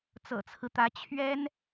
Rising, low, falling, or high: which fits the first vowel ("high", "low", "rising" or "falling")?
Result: low